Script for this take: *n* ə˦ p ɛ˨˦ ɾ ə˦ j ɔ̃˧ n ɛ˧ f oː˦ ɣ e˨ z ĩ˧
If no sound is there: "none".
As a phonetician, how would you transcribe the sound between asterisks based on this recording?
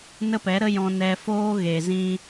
n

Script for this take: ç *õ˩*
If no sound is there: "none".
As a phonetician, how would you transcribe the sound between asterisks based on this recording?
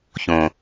õ˩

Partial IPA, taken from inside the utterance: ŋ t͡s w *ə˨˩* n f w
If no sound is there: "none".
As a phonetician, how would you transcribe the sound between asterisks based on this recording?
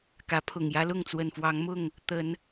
ə˨˩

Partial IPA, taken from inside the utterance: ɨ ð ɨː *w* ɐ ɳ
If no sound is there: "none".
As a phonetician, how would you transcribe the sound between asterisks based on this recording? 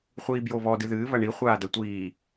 β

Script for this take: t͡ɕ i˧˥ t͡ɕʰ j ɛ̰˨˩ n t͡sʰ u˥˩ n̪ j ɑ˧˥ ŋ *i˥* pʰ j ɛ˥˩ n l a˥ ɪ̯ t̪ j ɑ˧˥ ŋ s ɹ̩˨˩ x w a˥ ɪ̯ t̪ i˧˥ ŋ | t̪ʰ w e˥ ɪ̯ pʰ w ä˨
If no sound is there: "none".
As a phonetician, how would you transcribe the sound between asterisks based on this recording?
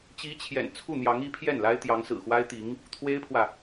i˧˥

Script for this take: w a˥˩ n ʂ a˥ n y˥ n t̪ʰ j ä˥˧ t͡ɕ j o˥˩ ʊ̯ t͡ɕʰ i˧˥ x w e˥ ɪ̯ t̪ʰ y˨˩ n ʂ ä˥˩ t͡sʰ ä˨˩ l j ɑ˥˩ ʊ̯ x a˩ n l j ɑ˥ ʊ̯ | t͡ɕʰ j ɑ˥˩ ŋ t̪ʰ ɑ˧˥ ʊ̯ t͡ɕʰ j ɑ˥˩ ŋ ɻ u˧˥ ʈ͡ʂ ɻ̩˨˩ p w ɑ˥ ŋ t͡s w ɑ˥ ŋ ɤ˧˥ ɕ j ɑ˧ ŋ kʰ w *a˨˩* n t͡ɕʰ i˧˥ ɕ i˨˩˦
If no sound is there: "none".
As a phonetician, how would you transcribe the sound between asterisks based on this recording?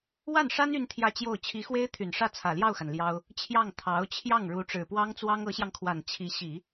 a˨˩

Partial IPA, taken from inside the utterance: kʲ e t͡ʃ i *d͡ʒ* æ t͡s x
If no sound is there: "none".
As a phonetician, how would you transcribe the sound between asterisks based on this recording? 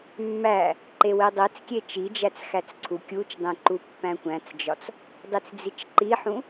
d͡ʒ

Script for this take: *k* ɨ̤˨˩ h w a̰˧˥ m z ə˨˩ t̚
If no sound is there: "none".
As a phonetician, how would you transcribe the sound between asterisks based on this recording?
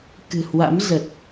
k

